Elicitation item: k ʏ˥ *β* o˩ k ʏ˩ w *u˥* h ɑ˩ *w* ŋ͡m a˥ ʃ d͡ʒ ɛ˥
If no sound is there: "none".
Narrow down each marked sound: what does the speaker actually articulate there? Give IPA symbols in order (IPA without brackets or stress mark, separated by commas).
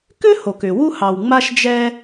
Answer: h, u˥, w